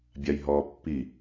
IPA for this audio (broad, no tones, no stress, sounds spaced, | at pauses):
bʲ a j ɦ ɔː pː i